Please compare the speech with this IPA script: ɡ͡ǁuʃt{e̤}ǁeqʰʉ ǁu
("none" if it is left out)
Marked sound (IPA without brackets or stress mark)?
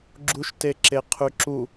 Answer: e